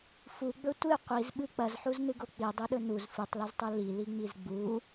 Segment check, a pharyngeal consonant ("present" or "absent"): present